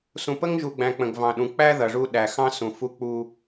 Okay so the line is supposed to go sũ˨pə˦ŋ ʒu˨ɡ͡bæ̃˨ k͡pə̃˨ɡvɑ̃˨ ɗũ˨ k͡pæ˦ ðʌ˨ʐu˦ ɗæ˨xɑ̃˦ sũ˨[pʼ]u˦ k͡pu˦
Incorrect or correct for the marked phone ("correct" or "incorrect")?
incorrect